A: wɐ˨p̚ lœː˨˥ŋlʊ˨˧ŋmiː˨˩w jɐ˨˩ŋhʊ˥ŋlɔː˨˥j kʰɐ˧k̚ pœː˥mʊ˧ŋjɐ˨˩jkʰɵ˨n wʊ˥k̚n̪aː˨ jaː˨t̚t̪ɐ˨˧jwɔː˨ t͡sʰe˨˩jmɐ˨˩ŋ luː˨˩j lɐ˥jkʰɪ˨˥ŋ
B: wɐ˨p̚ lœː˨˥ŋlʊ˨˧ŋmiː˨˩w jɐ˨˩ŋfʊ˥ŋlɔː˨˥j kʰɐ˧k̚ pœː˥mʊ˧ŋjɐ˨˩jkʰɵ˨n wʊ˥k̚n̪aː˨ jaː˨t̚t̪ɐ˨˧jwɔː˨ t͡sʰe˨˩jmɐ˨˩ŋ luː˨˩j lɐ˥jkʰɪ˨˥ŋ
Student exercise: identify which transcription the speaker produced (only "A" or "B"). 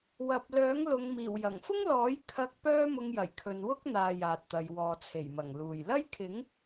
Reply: B